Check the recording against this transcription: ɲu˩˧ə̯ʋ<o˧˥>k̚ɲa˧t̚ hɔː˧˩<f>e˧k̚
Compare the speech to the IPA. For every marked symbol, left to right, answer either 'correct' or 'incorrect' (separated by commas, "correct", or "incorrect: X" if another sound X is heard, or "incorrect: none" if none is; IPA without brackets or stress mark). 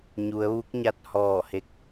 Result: incorrect: u˧˥, incorrect: h